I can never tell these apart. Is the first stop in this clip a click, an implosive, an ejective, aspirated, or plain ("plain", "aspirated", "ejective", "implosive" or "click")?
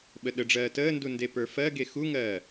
implosive